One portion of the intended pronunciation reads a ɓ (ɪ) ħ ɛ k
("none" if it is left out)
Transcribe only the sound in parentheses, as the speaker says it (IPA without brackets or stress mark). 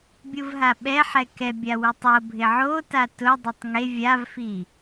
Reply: ɛ